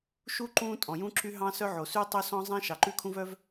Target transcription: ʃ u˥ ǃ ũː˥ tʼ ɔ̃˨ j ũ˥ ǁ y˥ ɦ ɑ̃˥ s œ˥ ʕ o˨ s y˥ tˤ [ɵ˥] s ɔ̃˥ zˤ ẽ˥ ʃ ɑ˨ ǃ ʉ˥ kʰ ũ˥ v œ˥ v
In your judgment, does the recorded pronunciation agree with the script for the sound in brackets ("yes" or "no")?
yes